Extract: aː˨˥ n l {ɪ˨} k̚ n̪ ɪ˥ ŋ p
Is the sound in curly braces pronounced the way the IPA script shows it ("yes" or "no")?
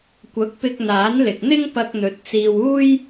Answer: yes